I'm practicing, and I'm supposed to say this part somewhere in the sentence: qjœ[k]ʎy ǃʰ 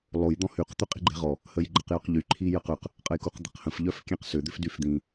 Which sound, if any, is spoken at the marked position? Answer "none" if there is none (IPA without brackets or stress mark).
q